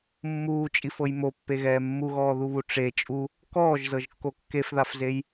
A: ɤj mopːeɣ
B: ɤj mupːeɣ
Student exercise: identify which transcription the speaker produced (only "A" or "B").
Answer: A